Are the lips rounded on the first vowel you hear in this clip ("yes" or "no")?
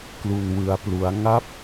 yes